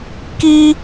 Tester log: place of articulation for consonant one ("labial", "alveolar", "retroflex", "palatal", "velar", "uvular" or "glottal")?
velar